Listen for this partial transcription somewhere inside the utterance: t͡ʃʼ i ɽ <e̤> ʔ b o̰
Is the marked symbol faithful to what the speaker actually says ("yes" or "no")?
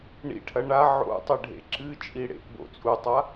no